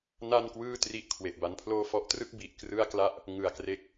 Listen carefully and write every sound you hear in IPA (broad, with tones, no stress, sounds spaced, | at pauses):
n a˥˩ n k w ɯː˥˩ t r i˦˥ ʔ kʰ w e˨˩ ʔ b a˦˥ n pʰ l oː˥˩ f ɔ˦˥ ʔ t r ɯ˥˩ k̚ b i˨˩ ʔ k r ɯ˥˩ a̯ k l a˥˩ ʔ | ŋ ɯ˨˩ a̯ k r e˥˩ k̚